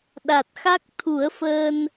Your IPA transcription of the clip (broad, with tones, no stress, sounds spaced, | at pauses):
ɗ a˨˩ t̚ x a˦˥ k̚ t̪ʰ u˨˩˦ ə̯ f əː˧ n